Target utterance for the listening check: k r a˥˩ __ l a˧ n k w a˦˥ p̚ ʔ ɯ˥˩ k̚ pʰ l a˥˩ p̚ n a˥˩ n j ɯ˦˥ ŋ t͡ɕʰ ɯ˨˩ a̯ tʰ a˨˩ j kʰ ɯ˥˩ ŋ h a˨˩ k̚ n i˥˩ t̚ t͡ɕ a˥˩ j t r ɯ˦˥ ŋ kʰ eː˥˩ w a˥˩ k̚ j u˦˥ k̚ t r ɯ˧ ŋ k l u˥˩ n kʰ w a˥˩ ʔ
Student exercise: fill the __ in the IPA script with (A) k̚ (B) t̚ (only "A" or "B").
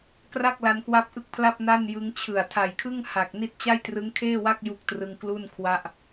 A